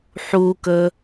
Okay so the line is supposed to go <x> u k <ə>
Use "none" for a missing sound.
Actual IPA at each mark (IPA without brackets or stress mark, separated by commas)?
ħ, ə